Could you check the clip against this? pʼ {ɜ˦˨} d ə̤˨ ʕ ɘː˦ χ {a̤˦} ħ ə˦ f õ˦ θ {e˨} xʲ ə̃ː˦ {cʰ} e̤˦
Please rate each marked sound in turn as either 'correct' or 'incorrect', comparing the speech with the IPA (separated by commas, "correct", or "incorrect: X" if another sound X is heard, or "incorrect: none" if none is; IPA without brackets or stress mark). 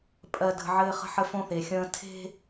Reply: incorrect: ɜ˨, incorrect: ə̤˦, correct, incorrect: tʰ